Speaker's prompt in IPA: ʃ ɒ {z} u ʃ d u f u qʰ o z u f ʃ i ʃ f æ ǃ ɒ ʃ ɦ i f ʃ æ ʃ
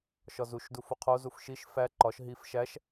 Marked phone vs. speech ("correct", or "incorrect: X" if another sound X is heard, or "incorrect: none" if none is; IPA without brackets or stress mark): correct